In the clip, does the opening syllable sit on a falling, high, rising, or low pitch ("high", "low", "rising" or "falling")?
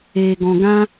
low